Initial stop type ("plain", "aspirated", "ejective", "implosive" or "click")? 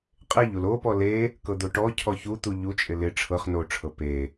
ejective